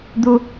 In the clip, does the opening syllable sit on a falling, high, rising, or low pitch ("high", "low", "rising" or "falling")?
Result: high